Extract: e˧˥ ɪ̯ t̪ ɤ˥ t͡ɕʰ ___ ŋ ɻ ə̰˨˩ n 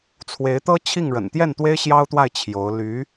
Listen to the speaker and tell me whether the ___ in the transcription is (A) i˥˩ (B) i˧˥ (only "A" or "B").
A